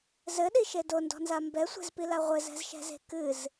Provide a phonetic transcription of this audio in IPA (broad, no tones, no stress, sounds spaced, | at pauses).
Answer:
z ɘ ɗ i ʃ e d o n d ɔ̤ n z a m b ɛ sʷ ɛ̤ z p i l a ʁʷ ɘ z ɛ̤ z ʃ ɛ̤ z e̤ k ɨ z